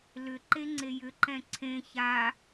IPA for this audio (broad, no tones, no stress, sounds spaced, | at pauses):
l ʏ ǃ e ŋ͡ǀ e j ʏ ǃ ɛ̃ ǀʰ ẽ ç a